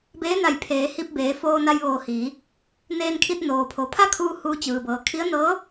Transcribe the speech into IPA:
b eː˧˥ n a˧˩ j pʰ eː˩˧ h i˧ p̚ b eː˩˧ f oː˧ n a˧ j ʋ oː˧˩ h iː˩˧ | n eː˧ n kʰ i˧ t̚ n oː˩ pʰ o˩˧ pʰ a˥˨ kʰ uː˧ h uː˧ t͡ɕ ɯː˩ b ɤː˩ kʰ i˧˥ ə̯ n ɤː˧˥

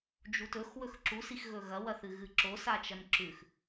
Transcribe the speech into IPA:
d͡ʒ u t ɵ x w ɵ x ǁ u s i x ɣ ɵ ɣ ɐ w ɐ θ ɨ ɣ ɨ ǁ o s a t͡ʃ ɐ n ǁ ʉ x

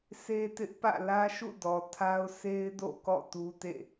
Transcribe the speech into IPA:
sʰ e˦ t ɪ˦ ʔ p ä̰˦˨ l ä˦ ʃ ṵ˦˨ d ɔ˨ tʰ a˦ ʊ̯ sʰ e˦ ɪ̯ d o̰˦˨ k ɔ̰˦˨ t u˦ t ḛ˦˨

